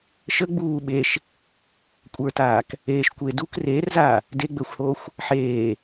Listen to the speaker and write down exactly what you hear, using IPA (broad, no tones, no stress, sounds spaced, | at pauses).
ʃ ə ɡ͡b uː ɓ e ʃ | kʷʼ ə˞ t aː k | eː ʃ kʷ e d u k r eː r z aː | d e ɡ͡b əː xʷ h oː xʷ | ħ eː